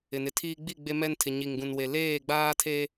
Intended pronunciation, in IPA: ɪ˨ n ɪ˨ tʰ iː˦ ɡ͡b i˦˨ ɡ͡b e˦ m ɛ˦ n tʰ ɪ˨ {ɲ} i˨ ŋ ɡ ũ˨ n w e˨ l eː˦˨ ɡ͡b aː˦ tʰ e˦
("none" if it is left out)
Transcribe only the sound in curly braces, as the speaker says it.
ɲ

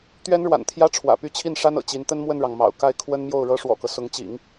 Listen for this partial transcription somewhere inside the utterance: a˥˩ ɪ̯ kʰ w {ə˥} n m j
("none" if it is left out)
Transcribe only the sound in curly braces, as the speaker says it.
ə˥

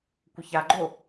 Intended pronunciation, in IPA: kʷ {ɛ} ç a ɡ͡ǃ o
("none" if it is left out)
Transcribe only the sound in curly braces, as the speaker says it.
ə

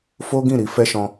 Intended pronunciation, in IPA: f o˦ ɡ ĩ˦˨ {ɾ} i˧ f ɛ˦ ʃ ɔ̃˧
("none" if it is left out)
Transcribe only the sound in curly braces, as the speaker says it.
ɾ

